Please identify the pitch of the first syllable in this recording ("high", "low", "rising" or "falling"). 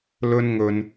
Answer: high